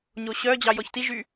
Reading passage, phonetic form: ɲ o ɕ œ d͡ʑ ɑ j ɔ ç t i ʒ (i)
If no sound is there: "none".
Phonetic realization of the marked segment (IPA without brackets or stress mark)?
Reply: y